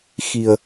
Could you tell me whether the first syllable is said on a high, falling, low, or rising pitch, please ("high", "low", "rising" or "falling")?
low